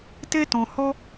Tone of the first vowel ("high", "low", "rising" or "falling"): high